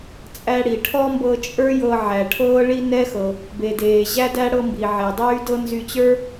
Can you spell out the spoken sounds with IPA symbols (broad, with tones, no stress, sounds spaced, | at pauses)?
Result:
t͡sʼ æ˧ ɽ i˩ ʈʰ ɔ˥ m b ɤ˧ t͡ʃʼ ə˞˥ j ɤ˧ ʕ æ˩ ʈʰ ɤː˥ ɭ i˥ n ɛ˥ x ɤ˩ | b e˩ d eː˩ ʑ æ˥ d æ˥ ɽ ɤ˧ m b i˩ ʕ e˩ dˤ yː˥ d ɤ˥ n z y˧ t͡ɕ ə˞˥